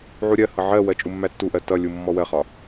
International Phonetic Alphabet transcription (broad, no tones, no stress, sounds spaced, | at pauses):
ʕ u ɾʲ ɜ h ʌ ʕ ɜ w ɜ t͡ʃʼ u mː æ tː u ʔ ɜ t ʌ lʲ u mː ɔ w ɜ χ ɒ